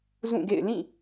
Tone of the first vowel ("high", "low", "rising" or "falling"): falling